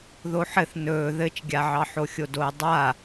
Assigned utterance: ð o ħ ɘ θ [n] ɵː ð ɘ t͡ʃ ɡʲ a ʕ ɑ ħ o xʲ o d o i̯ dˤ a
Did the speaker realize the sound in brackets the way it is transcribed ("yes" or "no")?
yes